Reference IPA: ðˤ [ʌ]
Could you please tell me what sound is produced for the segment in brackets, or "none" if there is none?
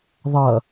ʌ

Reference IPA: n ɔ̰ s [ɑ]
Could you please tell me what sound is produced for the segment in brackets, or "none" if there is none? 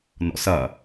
ɐ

